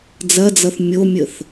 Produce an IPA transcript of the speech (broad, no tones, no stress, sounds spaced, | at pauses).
d͡z ɐ d͡z ʌ θ mʲ o mʲ ə θ